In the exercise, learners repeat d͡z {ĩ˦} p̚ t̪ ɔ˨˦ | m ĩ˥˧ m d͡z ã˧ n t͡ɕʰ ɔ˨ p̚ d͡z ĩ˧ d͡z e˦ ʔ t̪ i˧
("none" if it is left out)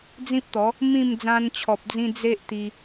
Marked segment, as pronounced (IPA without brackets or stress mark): ĩ˦